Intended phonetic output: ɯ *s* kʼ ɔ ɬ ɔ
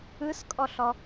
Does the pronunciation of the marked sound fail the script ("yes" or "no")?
no